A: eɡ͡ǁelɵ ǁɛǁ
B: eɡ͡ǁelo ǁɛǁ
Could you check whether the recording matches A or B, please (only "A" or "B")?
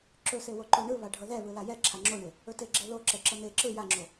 B